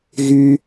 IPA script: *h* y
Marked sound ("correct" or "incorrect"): incorrect